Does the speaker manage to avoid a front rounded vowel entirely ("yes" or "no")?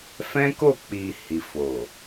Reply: yes